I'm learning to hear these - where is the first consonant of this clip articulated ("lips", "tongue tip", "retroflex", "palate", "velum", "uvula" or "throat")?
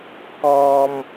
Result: velum